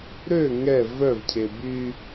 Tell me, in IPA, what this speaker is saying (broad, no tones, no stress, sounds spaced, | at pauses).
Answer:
ɾ ø ŋ ɛ v œ v cʰ e b y